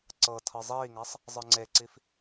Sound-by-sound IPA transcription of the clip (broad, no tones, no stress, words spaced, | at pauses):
ǀɤtʰɤ zˤiːŋasˤ | zˤɯŋ͡ǀeǀif